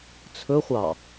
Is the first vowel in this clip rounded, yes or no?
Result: yes